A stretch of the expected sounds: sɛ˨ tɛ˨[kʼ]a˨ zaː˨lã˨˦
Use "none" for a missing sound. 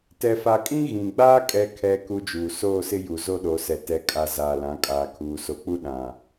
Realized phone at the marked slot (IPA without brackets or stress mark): kʼ